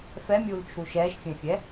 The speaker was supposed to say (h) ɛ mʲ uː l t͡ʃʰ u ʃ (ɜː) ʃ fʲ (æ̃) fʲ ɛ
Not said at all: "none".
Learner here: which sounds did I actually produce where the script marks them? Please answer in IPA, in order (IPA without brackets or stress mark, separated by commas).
f, ɛː, ɛ̃